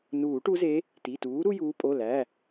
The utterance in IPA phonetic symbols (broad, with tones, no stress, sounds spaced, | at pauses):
n uː˨˩˦ ʈ u˨˦ z e˨˦ | t i˩˧˩ t uː˨˦ ɾ u˦ j uː˨˦ pʼ o˩˧˩ l æ˩˧˩